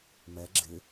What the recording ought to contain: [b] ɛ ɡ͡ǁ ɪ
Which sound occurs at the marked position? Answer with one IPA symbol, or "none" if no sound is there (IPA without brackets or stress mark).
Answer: m